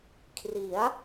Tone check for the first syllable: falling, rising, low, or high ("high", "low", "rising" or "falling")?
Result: rising